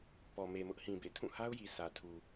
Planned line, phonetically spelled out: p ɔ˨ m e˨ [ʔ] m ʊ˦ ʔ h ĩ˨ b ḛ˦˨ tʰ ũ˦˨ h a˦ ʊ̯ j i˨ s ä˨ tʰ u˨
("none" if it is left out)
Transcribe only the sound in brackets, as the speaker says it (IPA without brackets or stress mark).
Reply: none